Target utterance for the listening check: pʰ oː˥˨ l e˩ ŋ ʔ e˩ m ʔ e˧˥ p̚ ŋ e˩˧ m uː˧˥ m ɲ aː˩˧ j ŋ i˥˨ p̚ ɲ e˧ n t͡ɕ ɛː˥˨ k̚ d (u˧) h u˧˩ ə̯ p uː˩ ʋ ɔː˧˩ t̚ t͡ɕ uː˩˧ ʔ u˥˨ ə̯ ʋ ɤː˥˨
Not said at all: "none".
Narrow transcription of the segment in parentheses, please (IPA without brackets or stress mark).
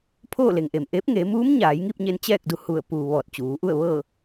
u˧